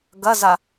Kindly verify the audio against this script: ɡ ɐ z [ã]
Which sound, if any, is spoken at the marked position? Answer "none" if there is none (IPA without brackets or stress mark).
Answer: a